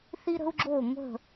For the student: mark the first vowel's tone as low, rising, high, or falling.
high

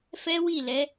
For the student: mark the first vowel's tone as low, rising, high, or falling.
high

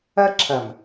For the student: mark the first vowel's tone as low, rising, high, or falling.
high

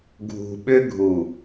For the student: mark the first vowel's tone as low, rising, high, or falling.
low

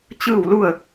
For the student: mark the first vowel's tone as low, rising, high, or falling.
falling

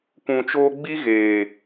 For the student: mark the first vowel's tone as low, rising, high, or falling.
low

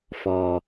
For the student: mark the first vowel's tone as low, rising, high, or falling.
low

